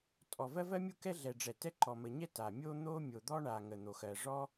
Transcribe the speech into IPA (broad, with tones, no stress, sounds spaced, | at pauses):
tʼ ɔ˩ v ɜ˥ v ɜ˥ mʲ u˥ k ɛ˥ ɮ ɛ˩ ɖ͡ʐ ɛ˩ t ɛ˥ ǃ ɔ˩ m ə˩ ɲ ɛ˥ t a˩ mʲ o˥ n̪ o˥ mʲ o˩ d̪ ɔ˥ ɳ a˩ ŋ ə˩ n̪ o˩ x ɜ˩ ʐ ɔ˥